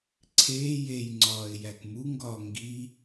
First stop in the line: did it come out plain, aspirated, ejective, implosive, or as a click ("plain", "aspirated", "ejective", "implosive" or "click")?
click